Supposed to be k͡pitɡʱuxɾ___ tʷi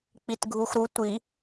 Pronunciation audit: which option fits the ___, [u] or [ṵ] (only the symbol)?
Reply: u